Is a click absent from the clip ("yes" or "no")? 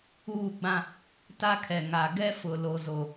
yes